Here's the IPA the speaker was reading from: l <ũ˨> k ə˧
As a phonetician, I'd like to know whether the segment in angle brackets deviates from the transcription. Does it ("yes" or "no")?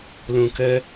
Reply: no